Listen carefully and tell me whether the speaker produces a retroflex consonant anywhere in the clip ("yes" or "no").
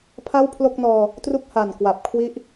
no